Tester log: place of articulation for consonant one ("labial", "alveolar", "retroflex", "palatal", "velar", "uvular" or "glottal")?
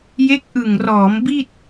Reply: palatal